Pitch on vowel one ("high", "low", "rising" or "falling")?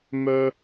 high